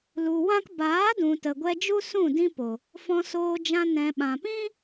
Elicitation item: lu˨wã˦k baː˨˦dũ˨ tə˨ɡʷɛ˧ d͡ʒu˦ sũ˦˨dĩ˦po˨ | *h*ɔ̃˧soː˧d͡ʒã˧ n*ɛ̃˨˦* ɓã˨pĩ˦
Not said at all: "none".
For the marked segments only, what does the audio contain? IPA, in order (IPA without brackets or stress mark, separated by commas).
f, ɛ̃˨